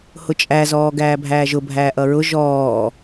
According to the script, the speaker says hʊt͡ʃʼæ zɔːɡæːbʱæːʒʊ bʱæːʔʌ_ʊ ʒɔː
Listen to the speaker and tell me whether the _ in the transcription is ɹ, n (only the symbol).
ɹ